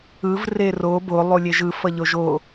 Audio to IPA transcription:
ɯ v r e r o b o lˠ u lʲ e ʒ ɯ f ʌ ʎ o ʒ o

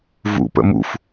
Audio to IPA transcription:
v ṵ p ə̰ m ṵ f

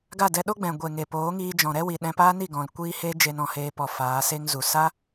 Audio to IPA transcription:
ɡ a˦˨ d ɛ˧ ɗ o˦ ɡ͡b ɛ̃˨ ɡʷ e˨ ŋ e˨ p oː˨˦ ŋ iː˧ d͡ʒ ɔ̃˨ ɾ ɛ˦ w i˨ ɗ ɛ̃˧ p aː˦ n i˦˨ ɡ ɔ̃˨ l kʷ iː˦ h eː˦ d͡ʒ e˧ n ɔ̃˨ h eː˧ p ɔ˨ f aː˨˦ s e˦ ŋ z u˨ s a˦

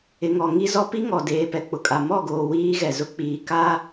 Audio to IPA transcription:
ɪ˨ ŋ ɔ˨ ŋ i˦ z ɔ˦ p i˦ ŋ ɔ˨ d eː˨ p ɛ˨ k͡p ʊ˨ kʼ a˨ m ɔ˦˨ ɡ oː˨ w iː˦ ɣ ɛ˨ z ʊ˦ k͡p iː˨ k aː˦

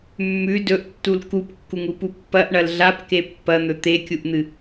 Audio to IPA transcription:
mː ʉ d ɵ ʔ tː u l k u p kː u ŋ u p u pː ɐ ʔ ɳ ɐ l ɮ a p k e pː ɐ n̪ ɵ t̪ e kʲ u ʔ n̪ ɨ

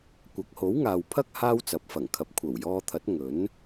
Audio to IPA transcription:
kʷ ɐ˨˥ k̚ h o˨˥ w ŋ aː˨ w pʰ ɐ˥ k̚ h aː˥ w t͡s ɐ˨˥ p̚ f ɐ˨˩ ŋ kʰ ɐ˨ p̚ kʷʰ ɐ˨˩ w j ɔː˧ t̪ʰ ɐ˨˥ t̚ ŋ ɵ˨˥ n

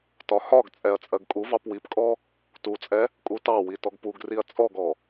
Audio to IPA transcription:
t ɒ h ɒ ɡ t͡sʼ ɛ ɐ̯ t͡sʼ ɜ ɡ kʼ u v ɑ p w i p kʼ ɔ | t u t͡sʼ ɛ | kʼ u t ɑ w i t ɔ ɡ p u ɡ r i ɐ̯ t͡sʼ ɔ ɡ ɔ

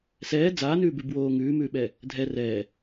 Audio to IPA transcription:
s ɛː d͡z aː n ʉː b ʉ b w oː ŋ ʉː m ʉː ɓ ɛ | dʱ ɛ r ɛː

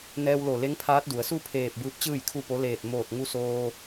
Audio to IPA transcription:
n ɛː˧ w l o˧˩ l e˧˥ ŋ pʰ aː˧˥ t̚ d u˩˧ ə̯ s u˥˨ pʰ eː˧˩ p̚ b ɯː˧˥ p̚ t͡ɕ ɯː˥˨ j kʰ u˥˨ p o˧˥ l eː˧˩ t̚ m oː˧˩ t̚ ŋ u˧ s oː˧

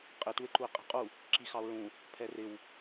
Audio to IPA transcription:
qʼ ɪ t u e̯ ǃ u e̯ qʼ ɛ̤ qʼ u | ǁ i x ɑ o̯ ɹ ũ | pʰ ɛ r ɪ w

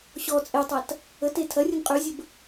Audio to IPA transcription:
ɕ ɔ t͡sʼ e tˤ ɐ t | ə t e tʰ ɐ rʲ ə n qʼ y zʲ ə b

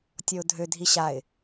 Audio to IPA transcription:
tʲ ɔ ʊ̯ dʱ ø dʱ i ɕ a ɪ̯

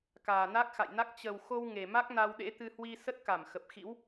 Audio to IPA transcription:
k aː˨˩ n a˦˥ k̚ x a̰˧˨ j n a˦˥ k̚ t͡ɕ ə˨˩ w x o˧ w ŋ e˨˩ m a˦˥ k̚ n a˧ w ɗ ḛ˧˥ t̪ ɨ˧ h w i˧ s ə˦˥ t̚ k a˧˩ m x ə˨˩ p̚ x ḭ˧˥ w

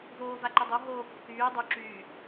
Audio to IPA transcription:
v oː v a ǃ o dˤ o ɦ oː kː yː dˤ y ǁ yː

